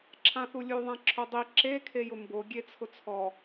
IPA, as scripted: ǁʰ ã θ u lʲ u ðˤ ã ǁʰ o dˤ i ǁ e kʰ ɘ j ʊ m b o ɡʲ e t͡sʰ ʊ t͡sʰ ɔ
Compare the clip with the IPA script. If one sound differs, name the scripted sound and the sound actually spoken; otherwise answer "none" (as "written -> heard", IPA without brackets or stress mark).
ɘ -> e